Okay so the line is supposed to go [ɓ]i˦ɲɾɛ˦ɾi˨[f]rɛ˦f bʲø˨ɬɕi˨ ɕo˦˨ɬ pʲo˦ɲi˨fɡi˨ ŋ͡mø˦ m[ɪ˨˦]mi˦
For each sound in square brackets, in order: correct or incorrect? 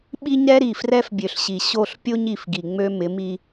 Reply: correct, correct, correct

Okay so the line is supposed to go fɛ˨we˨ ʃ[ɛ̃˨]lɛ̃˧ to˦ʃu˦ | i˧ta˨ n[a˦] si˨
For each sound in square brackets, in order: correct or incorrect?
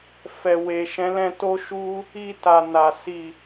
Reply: incorrect, incorrect

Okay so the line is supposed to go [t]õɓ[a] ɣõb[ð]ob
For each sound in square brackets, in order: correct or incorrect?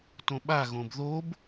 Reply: correct, correct, correct

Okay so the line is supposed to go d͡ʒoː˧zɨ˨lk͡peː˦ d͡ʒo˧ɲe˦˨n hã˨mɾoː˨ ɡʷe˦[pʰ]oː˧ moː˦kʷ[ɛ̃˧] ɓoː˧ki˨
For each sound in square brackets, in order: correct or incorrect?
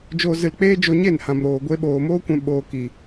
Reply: incorrect, correct

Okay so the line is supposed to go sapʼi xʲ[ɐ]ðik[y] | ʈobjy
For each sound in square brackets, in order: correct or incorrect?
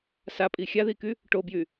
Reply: incorrect, correct

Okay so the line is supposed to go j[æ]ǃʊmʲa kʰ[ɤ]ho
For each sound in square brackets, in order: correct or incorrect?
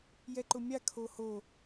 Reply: incorrect, incorrect

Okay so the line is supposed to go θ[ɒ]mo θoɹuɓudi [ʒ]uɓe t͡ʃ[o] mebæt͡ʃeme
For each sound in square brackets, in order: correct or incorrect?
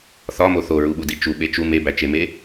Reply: correct, incorrect, incorrect

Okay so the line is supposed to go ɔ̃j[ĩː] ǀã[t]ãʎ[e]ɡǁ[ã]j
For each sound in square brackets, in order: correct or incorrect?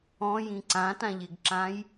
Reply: incorrect, correct, correct, correct

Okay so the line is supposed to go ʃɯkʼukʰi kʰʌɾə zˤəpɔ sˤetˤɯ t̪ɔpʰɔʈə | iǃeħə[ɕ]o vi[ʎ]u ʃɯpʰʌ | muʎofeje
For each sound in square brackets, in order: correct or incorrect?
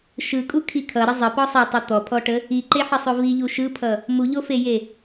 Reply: incorrect, correct

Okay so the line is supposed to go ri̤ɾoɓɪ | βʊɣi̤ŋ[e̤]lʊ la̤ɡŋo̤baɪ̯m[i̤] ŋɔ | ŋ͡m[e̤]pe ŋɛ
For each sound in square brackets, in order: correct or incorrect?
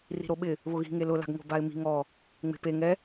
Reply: incorrect, correct, correct

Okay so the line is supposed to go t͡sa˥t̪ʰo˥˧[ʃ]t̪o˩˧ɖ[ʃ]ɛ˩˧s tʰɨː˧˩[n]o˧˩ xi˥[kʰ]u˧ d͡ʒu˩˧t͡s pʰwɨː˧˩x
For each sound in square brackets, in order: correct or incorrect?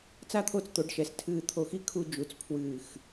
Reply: incorrect, correct, incorrect, correct

